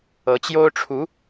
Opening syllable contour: rising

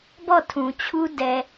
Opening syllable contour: falling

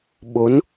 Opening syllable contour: rising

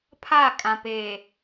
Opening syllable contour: falling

